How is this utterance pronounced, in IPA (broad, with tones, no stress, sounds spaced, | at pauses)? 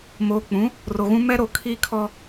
m oː˨ k͡p ũ˨˦ | r o˨ ɣ ũ˦ m ɛ˦ ɾ o˨ kʰ iː˦ kʰ ɔ˦